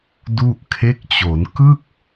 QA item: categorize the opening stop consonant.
plain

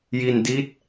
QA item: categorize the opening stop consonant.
plain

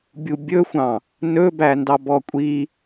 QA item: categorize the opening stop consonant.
plain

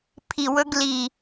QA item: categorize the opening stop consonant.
aspirated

